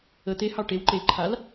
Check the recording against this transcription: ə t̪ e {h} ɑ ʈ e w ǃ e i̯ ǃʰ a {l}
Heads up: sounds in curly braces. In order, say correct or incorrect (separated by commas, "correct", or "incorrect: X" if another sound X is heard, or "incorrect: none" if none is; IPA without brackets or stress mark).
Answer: correct, correct